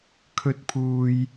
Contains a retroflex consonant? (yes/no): no